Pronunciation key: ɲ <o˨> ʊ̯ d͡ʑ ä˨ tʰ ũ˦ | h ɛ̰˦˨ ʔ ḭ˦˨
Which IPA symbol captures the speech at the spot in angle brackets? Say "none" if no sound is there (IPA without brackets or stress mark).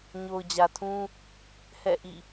o˨